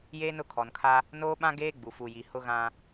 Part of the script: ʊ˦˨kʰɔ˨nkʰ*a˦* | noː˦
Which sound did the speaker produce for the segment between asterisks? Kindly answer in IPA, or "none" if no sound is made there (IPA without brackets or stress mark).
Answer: a˦